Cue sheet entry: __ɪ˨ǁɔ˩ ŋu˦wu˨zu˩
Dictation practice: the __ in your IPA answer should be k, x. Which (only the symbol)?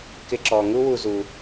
k